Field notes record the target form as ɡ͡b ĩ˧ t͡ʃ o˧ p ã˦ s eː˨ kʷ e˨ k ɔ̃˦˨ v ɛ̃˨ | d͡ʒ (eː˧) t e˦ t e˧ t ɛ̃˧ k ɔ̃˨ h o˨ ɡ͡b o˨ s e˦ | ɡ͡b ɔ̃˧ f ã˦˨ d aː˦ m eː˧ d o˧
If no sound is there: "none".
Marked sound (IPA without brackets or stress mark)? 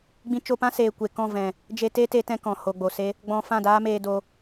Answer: e˧